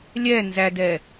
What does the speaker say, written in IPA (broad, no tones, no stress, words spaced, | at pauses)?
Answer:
lʲɛ nzædɛ